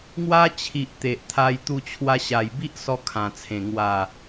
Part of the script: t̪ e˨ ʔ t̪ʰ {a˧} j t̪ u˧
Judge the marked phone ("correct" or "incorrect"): correct